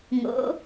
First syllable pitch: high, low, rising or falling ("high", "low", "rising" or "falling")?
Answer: rising